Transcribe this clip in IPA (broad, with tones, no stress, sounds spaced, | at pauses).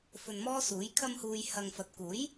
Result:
f ɵ˧ n m ɔː˥ s uː˨˥ j kʰ ɐ˧ m h uː˨ j h ɐ˨ ŋ f ɐ˨ t̚ k uː˨˥ j